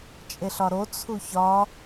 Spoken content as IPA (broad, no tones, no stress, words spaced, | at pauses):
t͡ʃʼeɬɒɾo t͡sʰuçɒ